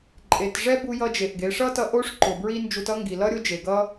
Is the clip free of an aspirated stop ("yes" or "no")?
yes